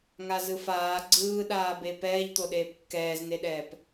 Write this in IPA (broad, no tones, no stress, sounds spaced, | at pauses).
ŋ a z ɯ f aː ɡ͡ǀ ɯː ɗ aː b e p ɛː ʎ t̪ o ɗ eː p kː ɛː z n e ɗ ɛː p